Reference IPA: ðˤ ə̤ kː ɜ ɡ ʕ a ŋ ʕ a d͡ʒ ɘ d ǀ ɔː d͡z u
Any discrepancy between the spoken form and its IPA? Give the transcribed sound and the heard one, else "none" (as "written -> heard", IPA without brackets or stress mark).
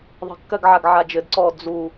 ŋ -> ɡ